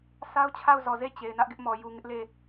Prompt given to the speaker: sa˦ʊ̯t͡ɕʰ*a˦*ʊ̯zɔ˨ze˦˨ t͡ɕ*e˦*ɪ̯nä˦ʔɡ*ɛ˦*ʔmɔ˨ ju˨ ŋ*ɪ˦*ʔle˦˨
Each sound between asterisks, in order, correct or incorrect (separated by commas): incorrect, incorrect, incorrect, correct